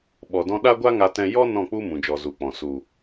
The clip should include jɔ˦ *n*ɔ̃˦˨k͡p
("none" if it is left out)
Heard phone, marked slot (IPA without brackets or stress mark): n